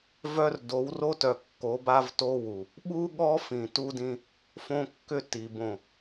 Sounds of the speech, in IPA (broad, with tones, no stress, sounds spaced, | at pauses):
v œ˦ r d o˨˦ w r o˦ t œ˨ kː o˨˦ b a˦ v t o˦ w u˨ | ɓ u˦ ɠ ɔ˦ f ĩ˨ t u˦ d ĩ˦ | f õ˦ kː ʏ˦ t i˨ b õ˨